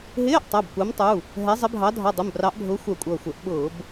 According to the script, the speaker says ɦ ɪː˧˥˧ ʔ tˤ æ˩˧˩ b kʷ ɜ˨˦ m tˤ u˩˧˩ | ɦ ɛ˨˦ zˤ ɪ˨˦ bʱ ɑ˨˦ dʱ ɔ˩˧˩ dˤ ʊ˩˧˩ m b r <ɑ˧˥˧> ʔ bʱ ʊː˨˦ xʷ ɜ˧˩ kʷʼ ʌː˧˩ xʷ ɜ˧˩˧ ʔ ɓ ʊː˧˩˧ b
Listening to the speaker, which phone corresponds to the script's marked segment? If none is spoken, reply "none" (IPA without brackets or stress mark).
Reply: ɑ˨˦